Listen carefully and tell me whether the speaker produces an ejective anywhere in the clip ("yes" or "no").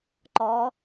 no